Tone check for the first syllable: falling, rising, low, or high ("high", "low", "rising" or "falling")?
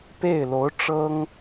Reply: falling